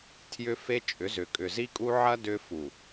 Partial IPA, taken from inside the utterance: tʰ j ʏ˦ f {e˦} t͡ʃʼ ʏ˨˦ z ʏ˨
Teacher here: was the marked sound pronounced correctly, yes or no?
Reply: yes